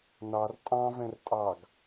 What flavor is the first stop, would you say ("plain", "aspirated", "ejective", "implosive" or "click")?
ejective